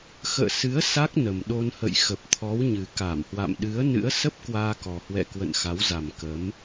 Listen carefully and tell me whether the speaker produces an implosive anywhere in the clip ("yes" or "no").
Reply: yes